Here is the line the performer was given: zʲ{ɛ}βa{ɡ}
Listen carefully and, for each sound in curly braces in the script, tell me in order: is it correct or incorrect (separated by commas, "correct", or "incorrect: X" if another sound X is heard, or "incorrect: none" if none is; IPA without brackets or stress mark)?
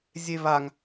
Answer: incorrect: e, incorrect: ŋ